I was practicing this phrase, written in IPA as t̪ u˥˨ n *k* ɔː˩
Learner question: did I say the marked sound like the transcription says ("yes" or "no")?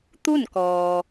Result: yes